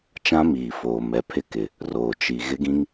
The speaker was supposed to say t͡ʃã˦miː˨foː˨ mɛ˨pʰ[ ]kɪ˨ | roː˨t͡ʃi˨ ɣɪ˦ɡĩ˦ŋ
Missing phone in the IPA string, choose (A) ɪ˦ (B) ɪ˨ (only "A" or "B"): A